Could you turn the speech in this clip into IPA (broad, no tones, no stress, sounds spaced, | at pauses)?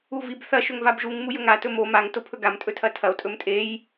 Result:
u v i b θ ɐ ʃ ɵ ŋ v a b ʒ u ŋ m u j ɵ ŋ a t ɵ m o m a ŋ t o pʰ ɵ ɡ a m tʼ ɵ tʰ ɐ tʰ ɐ o̯ tʼ ɵ m tʼ e j